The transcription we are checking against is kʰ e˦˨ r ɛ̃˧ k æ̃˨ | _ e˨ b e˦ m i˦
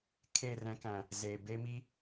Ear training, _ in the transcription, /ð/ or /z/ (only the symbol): z